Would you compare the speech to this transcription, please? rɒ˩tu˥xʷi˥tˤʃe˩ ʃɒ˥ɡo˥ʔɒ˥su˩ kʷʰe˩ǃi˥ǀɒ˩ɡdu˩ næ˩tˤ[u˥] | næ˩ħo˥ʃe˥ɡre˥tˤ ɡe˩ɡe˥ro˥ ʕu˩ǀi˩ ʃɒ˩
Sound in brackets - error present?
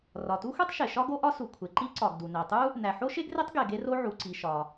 no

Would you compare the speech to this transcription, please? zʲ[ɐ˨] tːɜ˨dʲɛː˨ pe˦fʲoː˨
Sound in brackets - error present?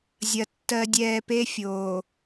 no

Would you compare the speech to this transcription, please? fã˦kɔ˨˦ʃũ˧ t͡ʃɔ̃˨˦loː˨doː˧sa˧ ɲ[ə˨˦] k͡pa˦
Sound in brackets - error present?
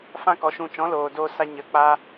no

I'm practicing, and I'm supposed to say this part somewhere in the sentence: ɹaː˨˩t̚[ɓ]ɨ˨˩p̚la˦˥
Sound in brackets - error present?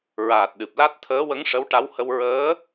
yes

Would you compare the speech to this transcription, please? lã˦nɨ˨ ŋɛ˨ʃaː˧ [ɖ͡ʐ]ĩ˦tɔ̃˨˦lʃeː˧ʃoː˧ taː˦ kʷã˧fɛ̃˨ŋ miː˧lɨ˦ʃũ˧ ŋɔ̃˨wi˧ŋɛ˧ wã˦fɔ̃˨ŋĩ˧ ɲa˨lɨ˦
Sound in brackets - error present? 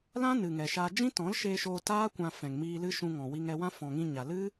yes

